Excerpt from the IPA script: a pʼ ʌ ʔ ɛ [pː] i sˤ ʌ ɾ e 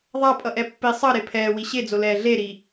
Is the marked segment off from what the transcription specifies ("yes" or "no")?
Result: no